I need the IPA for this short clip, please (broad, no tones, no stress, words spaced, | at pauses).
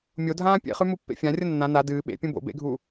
mʲodʱãː pʲḛχʉ mupːḛfʲãrʲɐ nːã na dɨː ɓḛpʲũ bo̰ bḛɡʱuː